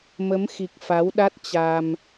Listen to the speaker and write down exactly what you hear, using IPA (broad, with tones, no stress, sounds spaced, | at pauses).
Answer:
m ə˨˦ m x i˨˩ k̚ f a˨˦ w ɗ a˦˥ t̚ t͡ɕ a˧ m